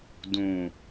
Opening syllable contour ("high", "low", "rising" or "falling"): low